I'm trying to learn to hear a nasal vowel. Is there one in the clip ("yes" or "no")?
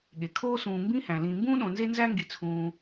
yes